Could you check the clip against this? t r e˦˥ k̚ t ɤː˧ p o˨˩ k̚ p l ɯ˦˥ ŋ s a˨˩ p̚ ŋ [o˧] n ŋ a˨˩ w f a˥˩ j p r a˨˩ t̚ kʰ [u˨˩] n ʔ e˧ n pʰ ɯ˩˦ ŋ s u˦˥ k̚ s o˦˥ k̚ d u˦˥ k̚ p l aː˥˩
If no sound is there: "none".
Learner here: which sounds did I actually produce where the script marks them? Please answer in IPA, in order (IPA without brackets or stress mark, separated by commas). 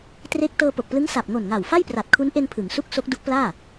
o˨˩, u˦˥